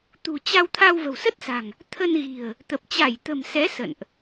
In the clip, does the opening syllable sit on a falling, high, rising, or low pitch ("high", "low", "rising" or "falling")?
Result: low